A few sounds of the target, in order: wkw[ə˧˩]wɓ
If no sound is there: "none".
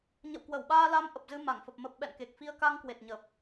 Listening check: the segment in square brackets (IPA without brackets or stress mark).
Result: ə˧˩